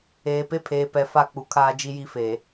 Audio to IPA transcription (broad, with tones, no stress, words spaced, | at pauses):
eː˨pe˦pʰeː˨pɛ˨ fa˦˨k͡pu˨ kʰaː˦d͡ʒi˦ji˦feː˨